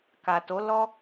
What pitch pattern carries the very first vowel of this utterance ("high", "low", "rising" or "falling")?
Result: low